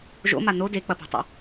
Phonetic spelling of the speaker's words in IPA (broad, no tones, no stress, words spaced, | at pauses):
ʒo̰ma no dek͡pɐpṳtˤḛ